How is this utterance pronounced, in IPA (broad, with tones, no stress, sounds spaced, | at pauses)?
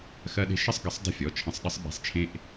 x ɜ˦ ɗ e̤˦ ʃ ə˦ sˤ ɡ ə˨˦ sˤ dˤ ə̤˦˨ fʲ ɔ˩˧˩ t͡ʃʰ ə̃˨˦ sˤ ɗ ə˨˦ sˤ ɓ e̤˨˦ sˤ t͡ʃʰ ẽ˦ ʔ